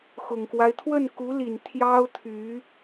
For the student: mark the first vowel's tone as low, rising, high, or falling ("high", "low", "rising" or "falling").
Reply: low